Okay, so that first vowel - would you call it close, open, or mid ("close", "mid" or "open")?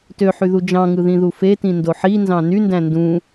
mid